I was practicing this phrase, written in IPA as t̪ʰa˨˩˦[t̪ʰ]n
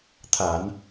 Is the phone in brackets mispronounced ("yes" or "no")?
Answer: yes